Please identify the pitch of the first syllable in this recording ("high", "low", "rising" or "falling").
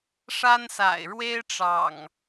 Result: high